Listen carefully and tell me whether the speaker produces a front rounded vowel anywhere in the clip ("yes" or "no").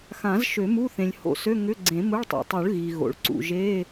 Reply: yes